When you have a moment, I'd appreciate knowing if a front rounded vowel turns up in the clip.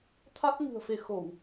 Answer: no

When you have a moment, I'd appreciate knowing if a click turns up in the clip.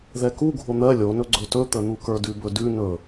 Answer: yes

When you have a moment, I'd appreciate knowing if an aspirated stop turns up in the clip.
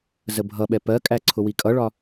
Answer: yes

